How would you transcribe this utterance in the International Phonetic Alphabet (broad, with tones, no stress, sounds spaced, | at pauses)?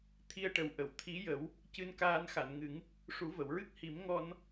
t̪ʰ i˧ ə̯ ʈ ə˨˩ w ʔ ə˨˩˨ w t̪ʰ i˧˥ j ə˨˩˦ w | c ɨ˧ n k aː˧ n x a˨˩˨ n ŋ ɨ˨˩˦ ŋ | ʂ u˨˩˦ v ə˨˩˨ w ɹ ɨ˦˥ k̚ h i˨˩˦ m ŋ ɔ˧ n